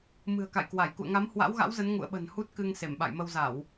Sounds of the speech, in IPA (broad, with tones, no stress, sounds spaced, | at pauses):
m ɨ̤˨˩ ə̯ k a̰˧˨ j k w a˧˩ j k ṵ˧˨ ə̯ ŋ a˨˦ m h w a̰˧˥ w ɣ a̰˧˥ w z ə˨˦ n ŋ ṵ˧˨ ə̯ ɓ ə̤˨˩ n h u˦˥ t̚ k ɨ˧ ŋ s e˧˩ m ɓ a̰˧˨ j m ə˧ w z a˧˩˨ w